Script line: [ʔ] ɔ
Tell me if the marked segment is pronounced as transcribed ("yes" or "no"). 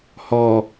no